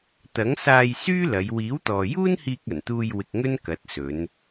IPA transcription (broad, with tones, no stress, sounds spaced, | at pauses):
t̪ ɐ˨˥ ŋ s aː˧ j s yː˥ l ɐ˨˧ j w iː˨˥ w t̪ ɔː˨ j uː˥ n h iː˧ k̚ ɐ˨˩ n t̪ uː˧ j w ɪ˧ k̚ ŋ ɵ˥ n k ɐ˨˥ t̚ s ɵ˨˧ n